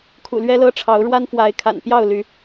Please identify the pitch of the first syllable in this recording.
low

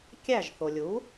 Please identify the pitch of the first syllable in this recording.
falling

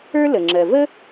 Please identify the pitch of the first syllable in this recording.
high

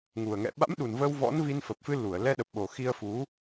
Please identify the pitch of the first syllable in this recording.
low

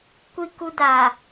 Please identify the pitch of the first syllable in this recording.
low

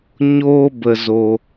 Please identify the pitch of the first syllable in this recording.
high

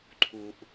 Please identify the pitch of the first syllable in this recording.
low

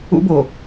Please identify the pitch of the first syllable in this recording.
high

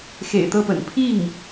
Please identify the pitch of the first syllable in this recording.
low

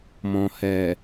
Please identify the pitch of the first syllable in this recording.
low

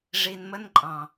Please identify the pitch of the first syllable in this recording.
low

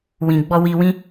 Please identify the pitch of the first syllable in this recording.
low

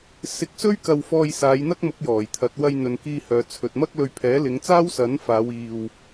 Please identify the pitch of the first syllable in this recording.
rising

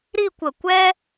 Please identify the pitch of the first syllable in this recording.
falling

